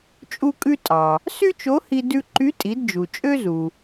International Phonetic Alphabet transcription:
t͡ʃʼ u˧ kʼ ʉ˧ tʼ ɑ˩ | s y˥ t͡ʃ o˧˥ h i˧ d ʉ˧ ǃ y˧˥ tʼ i˩˧ d d͡ʒ u˩ t͡ʃʼ ø˥ z u˩

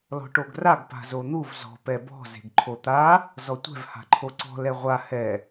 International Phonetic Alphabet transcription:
l ɔ̤ ʈ o ɡ r a ɡ p a̤ z o n̪ u v z ɔ̤ p ɛ b ɔ̤ z e̤ ɡ ǃʰ o t̪ a | z ɔ tʷ ɛ̤ v h a̤ ǃʰ o ǀ ɔ̤ l ɛ ʁʷ a h ɛ

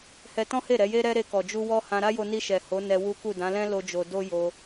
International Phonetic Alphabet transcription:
h ɛ˧ t ɔ̃˦ h e˦˨ ɾ ɛ˨˦ j e˦ ɾ ɛ˦ ɾ e˧ k ɔ˨ d͡ʒ u˧ w ɔ˦ h ã˧ ɾ a˦ j o˧ n i˧ ʃ ɛ˨ h o˨˦ n ɛ˧ w u˦ k u˦˨ d ã˨˦ l ɛ̃˦ l o˦ d͡ʒ o˧ d o˦ j o˧

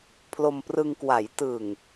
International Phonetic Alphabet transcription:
pʰ l o˧ m p r ɯ˧ ŋ k w a˩˦ j t ɯ˨˩ ŋ

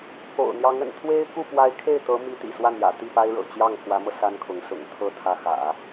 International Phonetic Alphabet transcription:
k o̰˨˩ ʊ̯ n̪ j ɑ˧˥ ŋ ə̰˨˩ n t̪ʰ w e˥ ɪ̯ k u˥˩ p w a˧˥ ɪ̯ kʰ e˥˩ ɪ̯ t̪ ɤ˧˥ m i˧˥ t̪ ḭ˨˩ s w a˥˩ n j ä̰˨˩ t̪ i˥˩ p a˥ ɪ̯ ɻ ɤ̰˨˩ t͡ɕ j ɑ˥˩ ŋ x w ä˧˥ m ɤ˧ s a˥ n kʰ ʊ˧˥ ŋ s ʊ̰˨˩ ŋ t̪ʰ ɤ˧˥ t̪ʰ ä˧˥ x ä̰˨˩˦

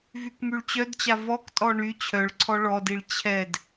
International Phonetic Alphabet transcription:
v y k m y ɭ t͡ɕ œ d t͡ɕ a v ɔ k tʼ ɔ ɳ y t͡ɕʰ œ ɭ ǀʰ ɔ ɭ ɔ d i ɭ t͡ɕʰ ɛ d

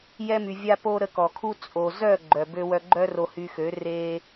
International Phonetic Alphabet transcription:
j ɛ˧ m y˨ vʲ a˧ p o˧ ɾ ə˧ k ɔ˨ kʰ u˦ t͡sʼ o˨ z œ˦˨ ɡ͡ǃ œ˨ b ø˧ w œ˧ ɡ͡ǃ œ˦ r o˧ h y˧ x ø˨˦ r e˦

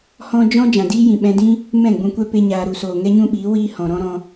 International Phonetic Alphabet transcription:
h ɔ̃˦ d͡ʒ ɔ̃˦ d͡ʒ ã˨ d iː˦ j ĩ˨ ɓ ɛ̃˧ d ĩ˦ | m ɛ̃˦˨ ɡ͡b ũ˧ kʷ ɛ˦ p e˦ ɲ aː˧ ɾ u˨ s oː˨ ŋ ɛ˦ ɲ ũ˦ ɓ iː˨˦ w iː˦ h ɔ̃˨ ɾ ɔ̃˦ ɾ ɔ̃˧

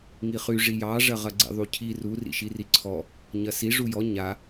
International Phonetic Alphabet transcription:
ŋ i χ y ʐ i j ɑ ʐ ɐ ʁ ɐ ɡ͡ǀ ḭ ðˤ u cʰ i r u r ḭ ʃ i r i ǀʰ ɔ | ɲ ɐ s i ʐ u j ɔ ɲ a

